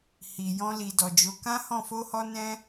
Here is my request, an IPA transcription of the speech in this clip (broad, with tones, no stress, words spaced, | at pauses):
hi˨ jɔ̃˧li˨ dɔ˨d͡ʒo˨˦ kã˦hɔ̃˦˨ fo˧hɔ˧ nɛ̃˦